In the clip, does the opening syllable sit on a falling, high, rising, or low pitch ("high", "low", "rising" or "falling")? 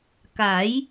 rising